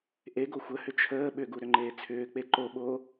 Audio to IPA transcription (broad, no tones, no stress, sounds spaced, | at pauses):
ʔ e ɡ o xʷ ə h ʏ t͡ʃʰ əː ɓ ʏ ɡ u ɾ ʏ ŋ͡ǃ eː t͡sʰ ʏː k͡p e ǃ o ɓ oː